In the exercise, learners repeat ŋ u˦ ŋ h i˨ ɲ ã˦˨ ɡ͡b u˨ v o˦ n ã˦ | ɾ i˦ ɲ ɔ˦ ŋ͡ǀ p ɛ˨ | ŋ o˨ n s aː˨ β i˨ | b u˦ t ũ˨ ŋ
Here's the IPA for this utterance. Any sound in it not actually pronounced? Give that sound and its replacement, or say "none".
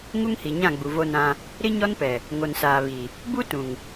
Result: ŋ͡ǀ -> n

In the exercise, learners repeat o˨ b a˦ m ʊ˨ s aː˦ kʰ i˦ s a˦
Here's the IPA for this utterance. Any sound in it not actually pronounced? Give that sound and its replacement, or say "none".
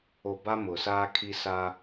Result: none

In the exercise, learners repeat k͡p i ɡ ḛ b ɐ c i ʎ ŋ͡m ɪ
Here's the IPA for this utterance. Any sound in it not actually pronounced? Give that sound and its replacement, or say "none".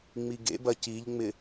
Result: k͡p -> ŋ͡m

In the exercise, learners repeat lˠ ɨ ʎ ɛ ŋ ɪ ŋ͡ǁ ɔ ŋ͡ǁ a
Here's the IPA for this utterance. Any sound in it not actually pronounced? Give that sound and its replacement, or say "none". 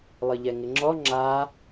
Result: none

